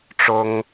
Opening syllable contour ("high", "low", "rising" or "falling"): high